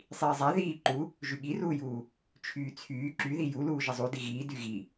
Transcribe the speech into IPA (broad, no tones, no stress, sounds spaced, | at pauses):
sˤ iː zˤ a ð iː ǃ u | ʒ y ɠ i r uː j uː | t͡ʃʰ yː t͡sʰ yː ǁ y ð i j u l uː ʒ ə zˤ u d i ɣ iː d y ɣ i